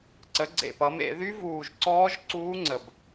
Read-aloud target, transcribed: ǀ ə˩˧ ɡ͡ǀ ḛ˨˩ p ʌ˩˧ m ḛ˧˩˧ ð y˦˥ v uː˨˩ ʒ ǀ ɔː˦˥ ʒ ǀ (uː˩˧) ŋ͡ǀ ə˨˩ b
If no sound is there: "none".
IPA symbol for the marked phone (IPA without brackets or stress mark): uː˦˥